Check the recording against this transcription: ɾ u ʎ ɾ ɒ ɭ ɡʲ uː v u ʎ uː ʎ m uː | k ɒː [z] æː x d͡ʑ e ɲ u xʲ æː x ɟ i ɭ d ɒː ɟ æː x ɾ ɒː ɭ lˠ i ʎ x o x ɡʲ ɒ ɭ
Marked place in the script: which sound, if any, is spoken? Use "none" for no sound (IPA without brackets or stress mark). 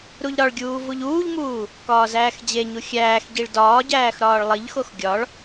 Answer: z